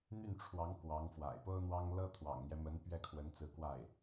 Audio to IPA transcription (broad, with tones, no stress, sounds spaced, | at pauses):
n̪ y˥˩ n ʈ͡ʂʰ w ɑ˧˥ ŋ k w ɑ˧˥ ŋ f w a̰˨˩ ɪ̯ p o˥ ʊ̯ n̪ w ɑ˥ ŋ l ɤ˥ t̪ʰ w ɑ̰˨˩ ŋ n̪ j ɛ˦ m ə˧˥ n p ɥ ɛ˥˩ kʰ w ə˧˥ n t͡s ɹ̩˧˥ k w a˥˩ ɪ̯